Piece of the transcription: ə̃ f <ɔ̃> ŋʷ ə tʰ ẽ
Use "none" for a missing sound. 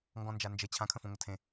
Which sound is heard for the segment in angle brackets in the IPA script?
ɔ̃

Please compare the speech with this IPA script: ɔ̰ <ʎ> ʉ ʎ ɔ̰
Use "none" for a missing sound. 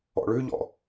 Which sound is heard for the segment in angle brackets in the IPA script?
ɭ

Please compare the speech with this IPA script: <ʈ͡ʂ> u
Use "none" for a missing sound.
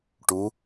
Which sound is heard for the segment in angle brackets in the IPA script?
ʈ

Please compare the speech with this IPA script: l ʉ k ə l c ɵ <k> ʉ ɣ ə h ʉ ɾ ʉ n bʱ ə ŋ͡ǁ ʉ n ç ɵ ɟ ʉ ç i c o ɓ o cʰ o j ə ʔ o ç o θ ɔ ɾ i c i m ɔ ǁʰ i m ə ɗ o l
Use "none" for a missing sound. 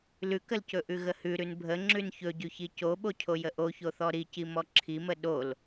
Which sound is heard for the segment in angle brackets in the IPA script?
ʔ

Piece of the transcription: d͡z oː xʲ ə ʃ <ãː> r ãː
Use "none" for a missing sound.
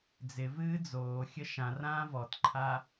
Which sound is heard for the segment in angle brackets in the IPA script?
ã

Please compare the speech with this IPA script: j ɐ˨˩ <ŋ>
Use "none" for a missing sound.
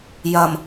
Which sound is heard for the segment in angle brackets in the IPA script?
m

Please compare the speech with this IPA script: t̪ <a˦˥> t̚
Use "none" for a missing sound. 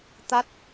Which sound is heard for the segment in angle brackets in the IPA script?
a˦˥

